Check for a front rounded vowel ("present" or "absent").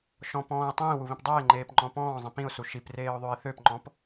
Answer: present